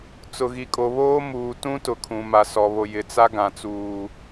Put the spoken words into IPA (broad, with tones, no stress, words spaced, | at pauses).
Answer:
t͡sʊ˨ɣi˨kʼo˨βoː˦ muː˨tũ˦tʊ˨ kʰũ˨ma˨ sɔ˨βo˨ jɪ˨t͡sa˦ɡã˨t͡suː˨